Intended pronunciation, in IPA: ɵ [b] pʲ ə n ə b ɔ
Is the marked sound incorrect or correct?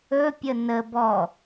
incorrect